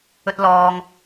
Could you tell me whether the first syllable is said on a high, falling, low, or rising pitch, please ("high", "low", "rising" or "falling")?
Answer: high